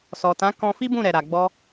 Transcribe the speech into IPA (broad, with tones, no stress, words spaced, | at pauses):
sɔ˨tã˨˦ kɔ̃˧fi˦bũ˦˨ɾɛ˨ ɾa˨ ɡ͡bɔ˧